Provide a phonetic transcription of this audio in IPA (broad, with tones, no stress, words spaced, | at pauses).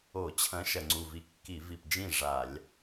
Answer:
o˧˩˧ t͡ɕʰɐ̃˨˥ ʃɐ˨˩ŋ͡ǀu˨˩vi˨˥ kːi˧˩˧vi˨˩pd͡ʒĩ˥˩ ʐa˧˩˧lʲ